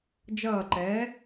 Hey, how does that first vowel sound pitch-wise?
falling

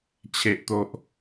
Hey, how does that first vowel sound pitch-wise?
low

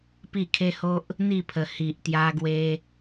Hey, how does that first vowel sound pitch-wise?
falling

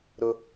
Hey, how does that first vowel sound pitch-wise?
low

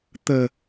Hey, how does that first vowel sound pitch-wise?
low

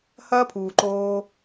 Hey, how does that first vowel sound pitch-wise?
high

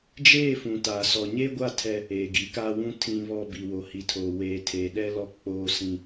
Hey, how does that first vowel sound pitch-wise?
falling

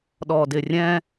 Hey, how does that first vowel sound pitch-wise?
low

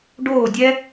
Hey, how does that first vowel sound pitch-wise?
falling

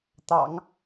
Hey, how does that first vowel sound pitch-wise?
low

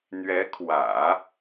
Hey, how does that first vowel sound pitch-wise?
rising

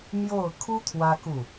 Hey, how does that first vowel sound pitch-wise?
falling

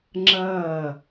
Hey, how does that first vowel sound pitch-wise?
falling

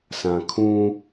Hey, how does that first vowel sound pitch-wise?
low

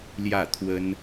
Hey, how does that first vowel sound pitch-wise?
falling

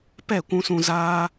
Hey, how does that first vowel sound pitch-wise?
falling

